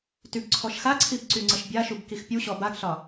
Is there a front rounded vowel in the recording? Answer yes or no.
yes